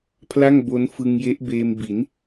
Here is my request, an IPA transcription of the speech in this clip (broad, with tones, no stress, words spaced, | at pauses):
pʰla˥˩ŋbo˦˥nfɯ˧ŋ je˦˥ʔbeː˧mbi˩˦n